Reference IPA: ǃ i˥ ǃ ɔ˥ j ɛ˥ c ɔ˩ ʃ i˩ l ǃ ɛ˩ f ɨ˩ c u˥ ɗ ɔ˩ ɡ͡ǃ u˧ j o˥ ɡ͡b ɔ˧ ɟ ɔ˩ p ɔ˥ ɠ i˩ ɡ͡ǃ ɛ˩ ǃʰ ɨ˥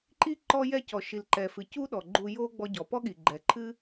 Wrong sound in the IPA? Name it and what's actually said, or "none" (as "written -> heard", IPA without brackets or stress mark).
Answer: none